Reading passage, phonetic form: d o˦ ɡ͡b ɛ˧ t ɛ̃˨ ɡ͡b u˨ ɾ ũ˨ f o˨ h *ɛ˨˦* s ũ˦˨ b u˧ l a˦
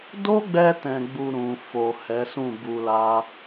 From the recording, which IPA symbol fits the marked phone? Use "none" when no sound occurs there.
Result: ɛ˨˦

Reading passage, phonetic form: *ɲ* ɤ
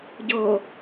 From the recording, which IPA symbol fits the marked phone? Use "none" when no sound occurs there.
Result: ɟ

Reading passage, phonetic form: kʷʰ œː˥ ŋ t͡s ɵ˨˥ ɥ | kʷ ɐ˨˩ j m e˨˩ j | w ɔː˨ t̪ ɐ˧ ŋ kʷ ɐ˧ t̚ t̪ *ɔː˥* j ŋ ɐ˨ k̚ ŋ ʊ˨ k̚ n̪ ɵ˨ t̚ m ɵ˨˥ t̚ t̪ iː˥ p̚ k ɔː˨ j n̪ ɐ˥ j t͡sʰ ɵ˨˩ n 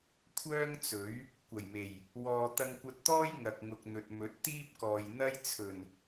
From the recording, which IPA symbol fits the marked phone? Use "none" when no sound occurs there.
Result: ɔː˥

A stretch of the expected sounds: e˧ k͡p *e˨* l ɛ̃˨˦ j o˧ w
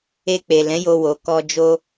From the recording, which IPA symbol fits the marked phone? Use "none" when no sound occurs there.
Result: e˨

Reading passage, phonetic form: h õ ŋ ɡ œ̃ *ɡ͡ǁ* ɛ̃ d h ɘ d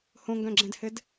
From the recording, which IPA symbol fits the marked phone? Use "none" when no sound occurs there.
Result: ɡ͡ǁ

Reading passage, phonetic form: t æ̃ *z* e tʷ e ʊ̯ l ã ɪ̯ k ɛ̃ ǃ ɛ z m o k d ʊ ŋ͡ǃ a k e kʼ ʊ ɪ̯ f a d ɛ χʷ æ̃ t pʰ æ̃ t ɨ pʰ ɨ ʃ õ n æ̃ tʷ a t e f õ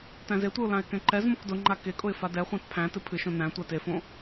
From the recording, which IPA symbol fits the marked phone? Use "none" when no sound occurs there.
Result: z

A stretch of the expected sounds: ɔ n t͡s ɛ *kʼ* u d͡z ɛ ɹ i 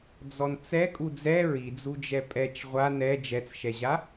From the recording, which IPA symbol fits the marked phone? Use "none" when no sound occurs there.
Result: kʼ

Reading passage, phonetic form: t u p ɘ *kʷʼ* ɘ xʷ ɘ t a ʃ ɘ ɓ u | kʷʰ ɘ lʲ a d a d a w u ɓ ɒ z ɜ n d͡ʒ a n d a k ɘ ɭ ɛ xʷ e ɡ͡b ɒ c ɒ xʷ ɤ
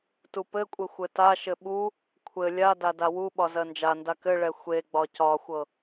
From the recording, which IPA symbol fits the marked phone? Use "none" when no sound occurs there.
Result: kʷʼ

